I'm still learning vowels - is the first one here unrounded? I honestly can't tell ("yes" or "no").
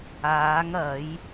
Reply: yes